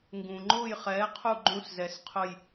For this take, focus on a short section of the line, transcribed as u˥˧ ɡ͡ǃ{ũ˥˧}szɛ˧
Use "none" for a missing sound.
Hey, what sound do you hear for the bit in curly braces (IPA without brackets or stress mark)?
ũ˥˧